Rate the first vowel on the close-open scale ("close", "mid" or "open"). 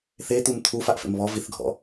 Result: mid